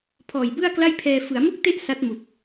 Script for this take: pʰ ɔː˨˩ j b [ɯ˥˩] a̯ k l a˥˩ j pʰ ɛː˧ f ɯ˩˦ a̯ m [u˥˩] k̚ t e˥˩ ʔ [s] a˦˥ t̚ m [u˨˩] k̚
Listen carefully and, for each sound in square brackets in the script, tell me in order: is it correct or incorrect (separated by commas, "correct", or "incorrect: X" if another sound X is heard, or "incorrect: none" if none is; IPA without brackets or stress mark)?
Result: correct, correct, correct, correct